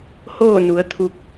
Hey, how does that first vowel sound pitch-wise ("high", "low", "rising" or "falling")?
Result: falling